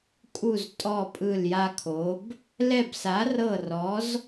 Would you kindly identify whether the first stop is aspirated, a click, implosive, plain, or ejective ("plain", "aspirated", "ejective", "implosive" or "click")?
ejective